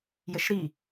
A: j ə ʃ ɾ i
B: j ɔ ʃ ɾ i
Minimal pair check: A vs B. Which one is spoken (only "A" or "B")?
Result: A